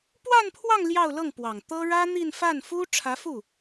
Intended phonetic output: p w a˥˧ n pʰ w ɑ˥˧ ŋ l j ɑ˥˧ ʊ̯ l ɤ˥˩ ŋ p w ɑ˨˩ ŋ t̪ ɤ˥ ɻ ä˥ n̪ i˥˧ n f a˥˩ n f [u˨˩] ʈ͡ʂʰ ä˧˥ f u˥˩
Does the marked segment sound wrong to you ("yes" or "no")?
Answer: yes